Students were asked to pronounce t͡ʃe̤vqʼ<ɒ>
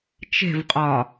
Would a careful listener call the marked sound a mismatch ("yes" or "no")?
no